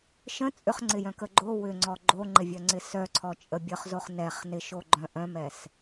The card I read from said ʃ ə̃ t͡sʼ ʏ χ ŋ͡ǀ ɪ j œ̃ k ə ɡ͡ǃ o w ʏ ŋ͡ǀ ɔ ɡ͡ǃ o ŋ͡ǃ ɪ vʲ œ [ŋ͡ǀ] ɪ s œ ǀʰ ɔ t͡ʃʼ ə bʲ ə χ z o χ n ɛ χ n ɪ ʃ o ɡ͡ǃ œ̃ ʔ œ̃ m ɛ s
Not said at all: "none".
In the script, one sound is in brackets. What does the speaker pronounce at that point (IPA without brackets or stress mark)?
ŋ͡ǀ